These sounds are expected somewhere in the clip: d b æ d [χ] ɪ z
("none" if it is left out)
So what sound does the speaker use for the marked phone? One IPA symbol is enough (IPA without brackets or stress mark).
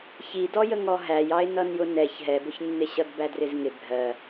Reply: r